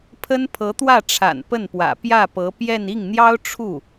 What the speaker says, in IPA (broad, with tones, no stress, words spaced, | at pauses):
pʰə˥npʰɤ˧˥t̪wä˥˩ʈ͡ʂʰa̰˨˩n pə˥˩npwä̰˨˩ pjä˥˩pɤ˧˥ pjɛ˥˧n i˥˩ŋn̪jɑ˥ʊ̯ ʈ͡ʂʰu˥˩